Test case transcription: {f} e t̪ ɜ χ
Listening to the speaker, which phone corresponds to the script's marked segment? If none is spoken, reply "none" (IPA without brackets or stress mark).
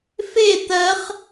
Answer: f